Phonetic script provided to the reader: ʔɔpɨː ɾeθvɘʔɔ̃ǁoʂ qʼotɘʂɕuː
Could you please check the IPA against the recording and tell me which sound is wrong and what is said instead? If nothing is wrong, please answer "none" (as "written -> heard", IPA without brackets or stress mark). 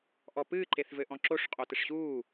ɾ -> ǃ